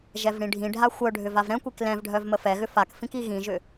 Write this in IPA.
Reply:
ʒ ɛ v ɽ ĩ ɖʱ ĩ ɖʱ a xʷ œ ɖʱ ʏ v a v ɾ ɛ̃ kʷ i k l ɛ̃ v ɖʱ œ v m ə f ɛ ɣ ʏ f a k f ĩ k i ɣ ĩ ʒ ʏ

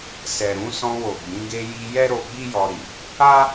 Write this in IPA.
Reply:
s ɛ˨ ɾ ũ˧ s ɔ̃˧ w o˨ ɡ͡b ĩ˨˦ ɡ e˧ j i˧ j ɛ˦ ɾ o˧ ɡ͡b i˦ j ɔ˧ ɾ i˨ | a˦

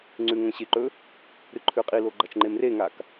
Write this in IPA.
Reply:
ŋ͡ǀ ʉ ŋ ɐ̃ ɕ e ǃ ɵ | ɾ ɨ ǃʰ ʉ qʼ i l o ɡ͡ǃ ɐ t͡ʃ ŋ͡ǃ e m r e ŋ a k

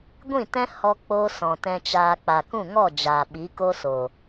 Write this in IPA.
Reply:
ɡʷ ĩ˦˨ t ɛ̃˦ h ɔ˦ k͡p o˦ s ɔ̃˨ t ɛ̃˧ t͡ʃ aː˧ k͡p a˨ k ũ˦˨ ŋ ɔ˦˨ d͡ʒ aː˨ ɓ i˨˦ k o˦ s o˨

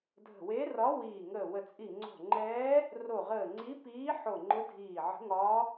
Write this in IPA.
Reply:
dʱ ə̤˧˩ w e˧˥ r ɒ˧˥ w iː˧˩ ŋ əː˧˩ w ə˧˩ t͡sʼ i˧˩ ŋ͡ǀ o̤˧˩ ŋ͡ǃ ɛː˧˥ | r o˧˩ ʁ əː˧˩ ŋ͡ǀ i˧˥ p iː˧˥ ħ o˧˩ ŋ͡ǃ ʊ˧˥ dʱ iː˧˩ ʕ ə̤˧˥ ŋ ɒː˧˥

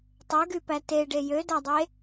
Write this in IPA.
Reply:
tˤ œ ɡ y p æ t e ɖ e j ø d æ dˤ e

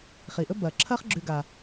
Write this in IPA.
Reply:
χ i˩ ʔ ɵ˦ b ɐː˩ ǁʰ ɐː˦ χ ɡ͡ǁ ʉ˨ ɡ a˩

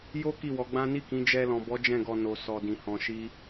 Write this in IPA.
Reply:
j o˦ k i˦˨ w ɔ˨˦ ɡ͡b ã˦ n i˦˨ k ĩ˨˦ d͡ʒ ɛ˧ l ɔ̃˨ b ɔ˨˦ d͡ʒ ɛ̃˦˨ ɡ ɔ˧ n o˨ s ɔ˧ d ĩ˧ h ɔ̃˧ ʃ i˦

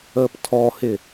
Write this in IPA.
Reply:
əː p tʰ ɔ h ɪ

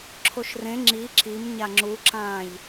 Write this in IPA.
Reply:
ǁʰ o ʃ r ẽ ŋ͡ǁ i ǁ i m ɲ a ŋ͡ǁ u ǁ ãː ʎ

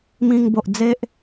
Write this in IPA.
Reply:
m ĩ˧ ŋ b o˨ ʔ d͡z e˦ ʔ

